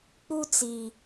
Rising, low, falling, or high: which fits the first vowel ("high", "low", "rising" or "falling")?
high